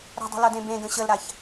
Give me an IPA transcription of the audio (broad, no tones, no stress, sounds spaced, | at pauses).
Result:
ɾ ə̤ dˤ ə̤ l ʌ d ẽ b ẽ ɡ ə̃ ɕ ə l ɾ a ç